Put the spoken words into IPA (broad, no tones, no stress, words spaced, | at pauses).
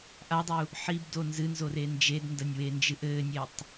ʔadˤu | ħibdo nzɨnzore nd͡ʒedndɐnʲwend͡ʒɨʔ ɘːnʲetˤ